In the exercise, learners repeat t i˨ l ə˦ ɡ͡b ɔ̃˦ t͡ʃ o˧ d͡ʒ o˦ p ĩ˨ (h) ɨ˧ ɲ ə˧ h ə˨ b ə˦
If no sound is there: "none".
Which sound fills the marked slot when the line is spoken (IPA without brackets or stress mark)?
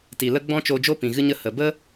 ɣ